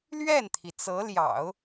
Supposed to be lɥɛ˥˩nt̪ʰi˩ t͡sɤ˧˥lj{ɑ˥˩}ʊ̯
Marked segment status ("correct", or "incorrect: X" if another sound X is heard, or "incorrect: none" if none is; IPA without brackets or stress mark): incorrect: ɑ̰˨˩˦